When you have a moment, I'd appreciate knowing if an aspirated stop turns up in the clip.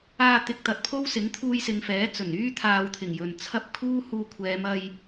yes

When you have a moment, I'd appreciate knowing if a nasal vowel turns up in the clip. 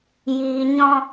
yes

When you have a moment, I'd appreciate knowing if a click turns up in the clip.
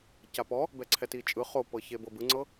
yes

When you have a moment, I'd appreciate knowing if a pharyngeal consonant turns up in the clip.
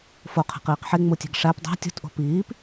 yes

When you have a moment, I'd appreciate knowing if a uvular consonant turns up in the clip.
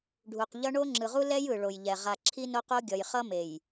yes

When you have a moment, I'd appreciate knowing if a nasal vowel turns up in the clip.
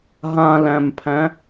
yes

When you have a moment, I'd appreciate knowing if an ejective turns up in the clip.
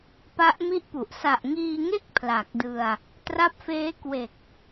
no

